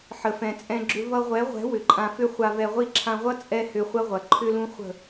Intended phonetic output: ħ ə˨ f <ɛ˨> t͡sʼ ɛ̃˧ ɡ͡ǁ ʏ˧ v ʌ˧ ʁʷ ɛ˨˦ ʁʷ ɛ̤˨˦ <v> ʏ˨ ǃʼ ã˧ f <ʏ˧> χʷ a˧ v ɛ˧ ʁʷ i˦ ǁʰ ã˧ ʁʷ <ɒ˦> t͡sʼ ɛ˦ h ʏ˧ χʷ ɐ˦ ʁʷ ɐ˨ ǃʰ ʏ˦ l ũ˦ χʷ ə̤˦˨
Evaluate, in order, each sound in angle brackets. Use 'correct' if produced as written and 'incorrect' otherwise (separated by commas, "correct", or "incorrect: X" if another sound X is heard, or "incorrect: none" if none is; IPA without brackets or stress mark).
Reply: incorrect: ɛ̃˨, incorrect: w, incorrect: ʏ˦, incorrect: ʌ˦